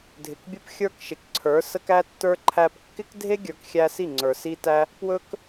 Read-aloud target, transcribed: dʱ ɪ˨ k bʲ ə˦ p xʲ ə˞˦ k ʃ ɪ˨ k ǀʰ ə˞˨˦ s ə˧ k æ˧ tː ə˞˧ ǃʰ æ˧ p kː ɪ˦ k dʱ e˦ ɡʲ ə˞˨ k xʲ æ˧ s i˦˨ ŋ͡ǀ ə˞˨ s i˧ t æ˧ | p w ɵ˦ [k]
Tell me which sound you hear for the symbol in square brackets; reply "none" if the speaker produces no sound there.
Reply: k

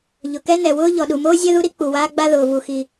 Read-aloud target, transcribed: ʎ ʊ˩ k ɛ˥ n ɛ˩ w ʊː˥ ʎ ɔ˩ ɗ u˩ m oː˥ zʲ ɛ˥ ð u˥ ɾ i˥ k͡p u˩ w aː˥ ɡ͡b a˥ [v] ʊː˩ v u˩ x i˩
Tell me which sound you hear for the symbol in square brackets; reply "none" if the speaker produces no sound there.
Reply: ð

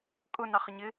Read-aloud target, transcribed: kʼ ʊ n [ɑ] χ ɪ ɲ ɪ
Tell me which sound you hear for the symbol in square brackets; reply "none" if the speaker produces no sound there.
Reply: ɑ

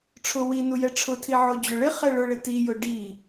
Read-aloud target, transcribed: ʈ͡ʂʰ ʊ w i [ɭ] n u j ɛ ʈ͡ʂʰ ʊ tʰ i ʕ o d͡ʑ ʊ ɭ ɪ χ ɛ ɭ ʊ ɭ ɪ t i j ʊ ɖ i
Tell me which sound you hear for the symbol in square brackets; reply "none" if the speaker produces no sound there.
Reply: none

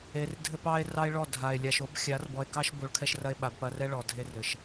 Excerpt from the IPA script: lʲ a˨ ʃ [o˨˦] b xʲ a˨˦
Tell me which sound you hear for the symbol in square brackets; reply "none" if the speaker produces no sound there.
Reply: o˨˦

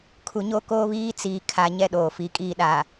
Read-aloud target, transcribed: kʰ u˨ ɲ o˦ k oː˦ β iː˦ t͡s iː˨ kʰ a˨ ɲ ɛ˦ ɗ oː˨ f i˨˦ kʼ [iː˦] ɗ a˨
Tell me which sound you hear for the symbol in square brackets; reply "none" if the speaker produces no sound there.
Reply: iː˦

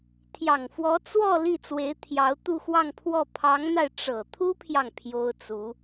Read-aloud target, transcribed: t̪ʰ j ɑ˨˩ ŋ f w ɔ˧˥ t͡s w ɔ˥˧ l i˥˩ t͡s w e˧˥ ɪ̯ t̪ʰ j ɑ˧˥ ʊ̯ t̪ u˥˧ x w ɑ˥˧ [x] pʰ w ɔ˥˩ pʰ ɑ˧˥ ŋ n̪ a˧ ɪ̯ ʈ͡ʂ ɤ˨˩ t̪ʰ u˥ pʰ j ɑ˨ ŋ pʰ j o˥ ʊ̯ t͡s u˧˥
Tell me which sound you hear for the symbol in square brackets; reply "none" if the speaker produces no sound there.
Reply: ŋ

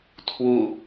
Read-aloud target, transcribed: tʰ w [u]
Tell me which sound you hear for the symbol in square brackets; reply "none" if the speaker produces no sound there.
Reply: u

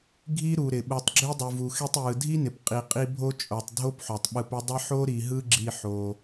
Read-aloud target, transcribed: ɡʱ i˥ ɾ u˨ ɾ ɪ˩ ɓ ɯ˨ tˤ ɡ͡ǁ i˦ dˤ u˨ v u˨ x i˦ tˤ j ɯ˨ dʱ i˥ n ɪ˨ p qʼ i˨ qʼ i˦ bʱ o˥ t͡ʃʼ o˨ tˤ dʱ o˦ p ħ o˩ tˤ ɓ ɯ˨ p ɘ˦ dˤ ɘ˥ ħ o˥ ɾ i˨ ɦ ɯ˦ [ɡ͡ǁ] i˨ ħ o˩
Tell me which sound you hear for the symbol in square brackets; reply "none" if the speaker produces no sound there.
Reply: ɡ͡ǁ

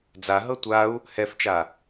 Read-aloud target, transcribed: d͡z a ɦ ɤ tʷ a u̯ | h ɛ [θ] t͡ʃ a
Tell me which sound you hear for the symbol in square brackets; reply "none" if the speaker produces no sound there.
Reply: f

